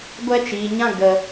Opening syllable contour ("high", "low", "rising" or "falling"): high